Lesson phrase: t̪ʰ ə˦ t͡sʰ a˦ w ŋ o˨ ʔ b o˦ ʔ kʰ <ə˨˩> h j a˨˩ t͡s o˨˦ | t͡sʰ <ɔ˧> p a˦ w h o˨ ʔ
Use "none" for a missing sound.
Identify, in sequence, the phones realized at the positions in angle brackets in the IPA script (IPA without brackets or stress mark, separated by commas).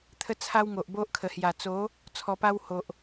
ə˨˩, ɔ˧